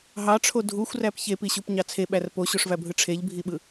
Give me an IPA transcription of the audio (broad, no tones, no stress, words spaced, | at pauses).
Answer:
ɦɑʈ͡ʂʰo dʱuxʷræp çepiɕupɲɑ t͡sʰeɓær poɕoʂvæbʱɯ ʈ͡ʂʰeʎbʱiɓɯ